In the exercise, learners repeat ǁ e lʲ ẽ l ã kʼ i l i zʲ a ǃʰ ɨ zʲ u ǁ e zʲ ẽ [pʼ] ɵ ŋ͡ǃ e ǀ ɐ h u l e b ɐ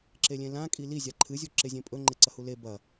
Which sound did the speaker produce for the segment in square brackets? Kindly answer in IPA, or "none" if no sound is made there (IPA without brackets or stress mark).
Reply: pʼ